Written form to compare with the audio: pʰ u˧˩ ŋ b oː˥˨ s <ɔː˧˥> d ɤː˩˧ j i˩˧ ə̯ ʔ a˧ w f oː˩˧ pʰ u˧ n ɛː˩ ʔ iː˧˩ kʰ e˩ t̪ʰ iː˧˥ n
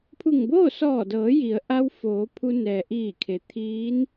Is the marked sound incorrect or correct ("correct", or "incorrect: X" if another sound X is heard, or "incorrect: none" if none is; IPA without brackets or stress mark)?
incorrect: ɔː˧˩